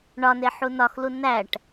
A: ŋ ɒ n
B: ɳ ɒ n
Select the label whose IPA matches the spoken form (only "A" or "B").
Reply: B